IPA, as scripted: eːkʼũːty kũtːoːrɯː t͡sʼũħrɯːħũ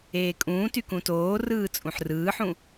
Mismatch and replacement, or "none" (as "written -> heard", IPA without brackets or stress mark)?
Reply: tː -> t